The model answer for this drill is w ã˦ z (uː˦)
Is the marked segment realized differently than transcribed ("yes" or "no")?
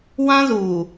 yes